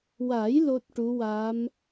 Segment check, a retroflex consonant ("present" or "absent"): present